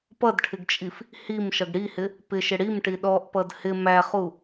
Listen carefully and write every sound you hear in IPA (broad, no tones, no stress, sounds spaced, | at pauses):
p ʌ d ʈʰ ɪ ɡ t͡ʃʼ i f | h i m ʃ ʌ ɡ ɽ i h ɪ | p ɪ ʃ ɪ ɽ i m ʈ i ɗ ɔ ʔ p ʌ d h ɪ m æ χ u